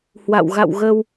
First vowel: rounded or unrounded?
unrounded